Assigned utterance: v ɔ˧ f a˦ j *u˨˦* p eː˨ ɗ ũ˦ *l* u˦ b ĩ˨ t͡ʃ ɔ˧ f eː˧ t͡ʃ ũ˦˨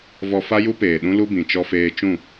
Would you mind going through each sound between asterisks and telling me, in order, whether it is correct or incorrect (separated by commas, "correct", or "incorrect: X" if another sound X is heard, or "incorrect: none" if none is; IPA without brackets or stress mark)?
incorrect: u˦, correct